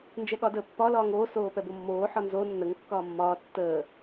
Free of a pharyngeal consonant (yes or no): no